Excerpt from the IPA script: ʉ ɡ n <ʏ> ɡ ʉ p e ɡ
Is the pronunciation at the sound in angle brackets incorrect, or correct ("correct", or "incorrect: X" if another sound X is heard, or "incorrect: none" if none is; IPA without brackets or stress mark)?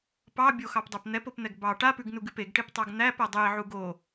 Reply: incorrect: u